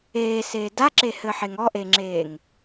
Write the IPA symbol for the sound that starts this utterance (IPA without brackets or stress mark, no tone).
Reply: eː